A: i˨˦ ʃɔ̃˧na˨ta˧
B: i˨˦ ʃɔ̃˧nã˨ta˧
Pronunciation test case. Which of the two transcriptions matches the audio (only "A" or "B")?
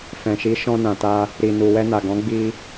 B